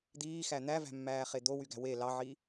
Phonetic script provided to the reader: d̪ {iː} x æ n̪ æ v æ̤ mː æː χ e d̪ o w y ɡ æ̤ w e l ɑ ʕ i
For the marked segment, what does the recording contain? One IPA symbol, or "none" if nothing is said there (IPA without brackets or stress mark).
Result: iː